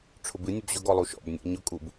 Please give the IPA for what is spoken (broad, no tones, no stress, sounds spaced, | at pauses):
ʈ͡ʂʰ ʊ b ɨ nʲ ʊ b ʑ ʊ ɡ ɔ lˠ u ʃ ɔ̰ b nʲ ɔ̰ ɲ ʊ kʼ u b